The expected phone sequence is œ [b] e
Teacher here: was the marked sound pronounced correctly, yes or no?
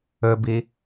yes